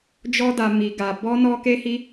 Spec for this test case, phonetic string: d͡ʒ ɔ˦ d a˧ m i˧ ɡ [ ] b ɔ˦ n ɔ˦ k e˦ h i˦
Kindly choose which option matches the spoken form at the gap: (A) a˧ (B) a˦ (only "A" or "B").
A